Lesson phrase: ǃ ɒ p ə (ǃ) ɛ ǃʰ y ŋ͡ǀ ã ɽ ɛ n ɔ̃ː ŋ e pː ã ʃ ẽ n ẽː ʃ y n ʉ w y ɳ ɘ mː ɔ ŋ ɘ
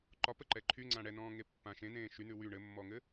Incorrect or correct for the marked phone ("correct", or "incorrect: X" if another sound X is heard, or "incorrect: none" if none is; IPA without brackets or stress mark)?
correct